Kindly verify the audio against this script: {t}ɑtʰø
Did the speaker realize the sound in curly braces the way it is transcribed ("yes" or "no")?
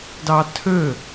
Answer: no